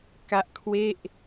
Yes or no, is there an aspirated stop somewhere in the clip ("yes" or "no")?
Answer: yes